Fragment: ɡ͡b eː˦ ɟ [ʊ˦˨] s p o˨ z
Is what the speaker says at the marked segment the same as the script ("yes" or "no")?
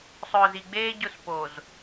yes